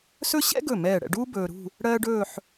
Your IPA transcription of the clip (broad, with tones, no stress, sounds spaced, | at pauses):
s ɵ˥ ɕ ɛ̰˥ ɡ ɵ˧˩ m ɛː˧˩ ɽ ɛ̰˧ ɖ uː˥ b ɵː˧ ɾ ṳ˥˧ | ɽ ɜː˥ ɖ ɵː˥˧ ħ